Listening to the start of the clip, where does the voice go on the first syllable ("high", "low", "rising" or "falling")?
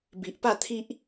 low